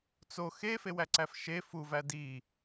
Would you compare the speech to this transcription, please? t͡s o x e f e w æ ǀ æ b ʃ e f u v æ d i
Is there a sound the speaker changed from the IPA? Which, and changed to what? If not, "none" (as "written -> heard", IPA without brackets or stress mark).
b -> f